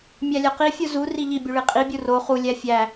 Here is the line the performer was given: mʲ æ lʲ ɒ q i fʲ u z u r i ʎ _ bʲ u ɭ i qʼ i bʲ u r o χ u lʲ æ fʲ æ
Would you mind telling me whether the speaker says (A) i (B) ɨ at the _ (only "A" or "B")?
A